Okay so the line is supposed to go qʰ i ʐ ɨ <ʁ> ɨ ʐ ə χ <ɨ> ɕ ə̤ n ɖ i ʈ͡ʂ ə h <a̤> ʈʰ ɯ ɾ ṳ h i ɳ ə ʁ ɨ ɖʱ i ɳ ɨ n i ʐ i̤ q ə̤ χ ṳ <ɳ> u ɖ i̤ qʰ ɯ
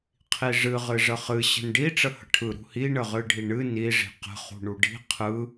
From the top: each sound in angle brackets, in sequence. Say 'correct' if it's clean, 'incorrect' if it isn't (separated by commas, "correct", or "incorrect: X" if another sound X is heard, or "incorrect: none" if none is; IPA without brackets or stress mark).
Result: correct, correct, incorrect: ə̤, correct